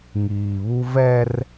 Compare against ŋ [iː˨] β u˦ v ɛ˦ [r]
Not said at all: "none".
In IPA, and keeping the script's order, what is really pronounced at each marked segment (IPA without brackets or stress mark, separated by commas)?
iː˨, r